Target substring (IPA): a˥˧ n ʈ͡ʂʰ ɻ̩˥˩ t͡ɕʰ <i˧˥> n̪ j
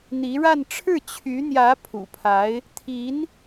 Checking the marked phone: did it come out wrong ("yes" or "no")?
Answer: yes